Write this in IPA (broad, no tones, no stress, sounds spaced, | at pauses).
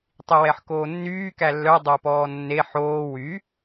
tˤ i w ɛ ħ k oː nː yː k æ lː œ dˤ o p ɔː nː e ħ oː w y